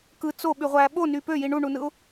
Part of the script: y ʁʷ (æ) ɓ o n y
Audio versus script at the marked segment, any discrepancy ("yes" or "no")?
no